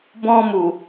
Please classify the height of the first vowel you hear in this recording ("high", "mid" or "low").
mid